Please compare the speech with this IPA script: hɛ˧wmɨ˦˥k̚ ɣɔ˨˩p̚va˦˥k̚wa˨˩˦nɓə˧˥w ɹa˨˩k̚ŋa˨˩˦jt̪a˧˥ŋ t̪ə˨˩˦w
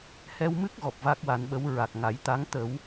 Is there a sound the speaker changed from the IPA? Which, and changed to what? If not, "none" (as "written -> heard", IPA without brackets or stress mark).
none